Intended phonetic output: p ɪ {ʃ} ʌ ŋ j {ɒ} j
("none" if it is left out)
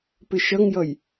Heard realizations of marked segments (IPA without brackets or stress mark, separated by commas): ʃ, ʌ